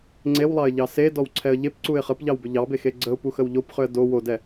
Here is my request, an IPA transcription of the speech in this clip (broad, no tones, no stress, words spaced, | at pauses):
ŋ͡ǀewlˠɑɪ̯ʎɑ sedɔwǀʰɛə̯ ʎepǀuɪ̯ χəpʎɑwbʏ ʎɑbexe ɡ͡ǀəʊ̯puxəw ʎopχʏə̯ do wodɛ